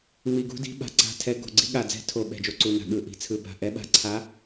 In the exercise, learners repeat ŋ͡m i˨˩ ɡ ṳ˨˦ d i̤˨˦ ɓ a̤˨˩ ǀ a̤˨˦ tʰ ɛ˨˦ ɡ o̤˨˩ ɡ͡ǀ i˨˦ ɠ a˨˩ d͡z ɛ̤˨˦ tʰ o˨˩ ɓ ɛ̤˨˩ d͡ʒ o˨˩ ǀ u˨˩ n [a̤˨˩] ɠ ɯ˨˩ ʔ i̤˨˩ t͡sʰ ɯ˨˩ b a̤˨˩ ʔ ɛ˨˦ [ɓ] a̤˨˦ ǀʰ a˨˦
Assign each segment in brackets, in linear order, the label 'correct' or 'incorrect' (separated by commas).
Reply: correct, correct